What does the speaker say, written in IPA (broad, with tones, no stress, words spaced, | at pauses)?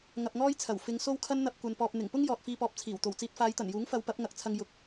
ŋɐ˧p̚ŋɔː˥jt͡sʰɐ˨˩w fɪ˨˧ŋ so˥wkʰɐ˥n n̪ɐ˧p̚kʷɐ˨npɔː˨p̚ n̪ɪ˨˩ŋpʊ˥ŋ jɔː˨t̚fiː˧pɔː˨p̚ t͡sʰiː˨˩wt̪o˨˩wt͡siː˧t̚ faː˨˧jt̪ɐ˨˩njuː˨˥ŋfɐ˨˧w pɐ˨˥p̚ŋɐ˨k̚ t͡sʰɐ˧ŋ jʊ˨˥k̚